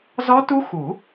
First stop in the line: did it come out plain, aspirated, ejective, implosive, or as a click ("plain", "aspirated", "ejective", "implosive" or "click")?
plain